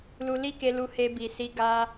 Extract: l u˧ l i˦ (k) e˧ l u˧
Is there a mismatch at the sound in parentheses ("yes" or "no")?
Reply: no